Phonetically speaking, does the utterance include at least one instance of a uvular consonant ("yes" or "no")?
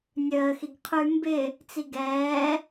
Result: yes